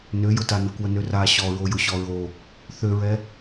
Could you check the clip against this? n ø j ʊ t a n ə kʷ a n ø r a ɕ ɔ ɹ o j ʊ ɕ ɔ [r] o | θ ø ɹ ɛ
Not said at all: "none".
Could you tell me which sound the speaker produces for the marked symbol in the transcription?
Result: ɹ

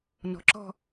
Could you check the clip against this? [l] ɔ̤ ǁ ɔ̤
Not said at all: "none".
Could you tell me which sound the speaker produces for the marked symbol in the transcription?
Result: n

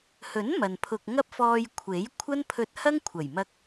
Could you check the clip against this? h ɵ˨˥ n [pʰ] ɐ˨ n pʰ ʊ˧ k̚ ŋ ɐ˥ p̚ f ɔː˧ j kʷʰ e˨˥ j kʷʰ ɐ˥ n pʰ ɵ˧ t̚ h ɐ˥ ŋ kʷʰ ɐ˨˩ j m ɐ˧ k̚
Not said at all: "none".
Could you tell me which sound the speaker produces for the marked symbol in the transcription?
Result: m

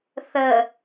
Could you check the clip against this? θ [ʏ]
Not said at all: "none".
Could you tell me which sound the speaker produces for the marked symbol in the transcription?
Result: ə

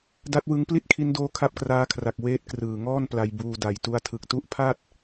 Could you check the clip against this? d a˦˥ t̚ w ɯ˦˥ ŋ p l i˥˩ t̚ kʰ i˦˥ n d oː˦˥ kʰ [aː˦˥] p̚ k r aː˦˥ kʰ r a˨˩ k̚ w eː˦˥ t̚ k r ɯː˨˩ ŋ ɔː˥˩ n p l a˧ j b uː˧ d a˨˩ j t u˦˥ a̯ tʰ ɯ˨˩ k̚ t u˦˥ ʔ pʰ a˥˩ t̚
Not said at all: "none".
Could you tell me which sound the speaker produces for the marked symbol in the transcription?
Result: a˦˥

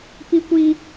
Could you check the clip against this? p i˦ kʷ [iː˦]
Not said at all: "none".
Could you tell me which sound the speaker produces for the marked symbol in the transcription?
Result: iː˦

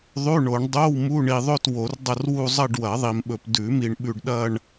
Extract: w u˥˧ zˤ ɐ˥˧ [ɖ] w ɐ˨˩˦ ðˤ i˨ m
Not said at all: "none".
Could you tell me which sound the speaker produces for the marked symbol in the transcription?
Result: ɖ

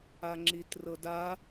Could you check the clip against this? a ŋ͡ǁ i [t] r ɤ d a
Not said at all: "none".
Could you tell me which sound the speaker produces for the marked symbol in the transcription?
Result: t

